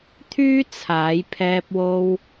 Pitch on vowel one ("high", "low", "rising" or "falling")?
high